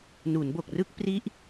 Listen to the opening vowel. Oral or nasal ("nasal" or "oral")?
oral